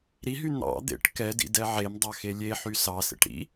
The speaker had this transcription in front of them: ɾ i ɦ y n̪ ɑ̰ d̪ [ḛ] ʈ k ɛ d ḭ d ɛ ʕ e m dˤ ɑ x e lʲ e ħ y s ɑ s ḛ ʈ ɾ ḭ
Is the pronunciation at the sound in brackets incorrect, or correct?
correct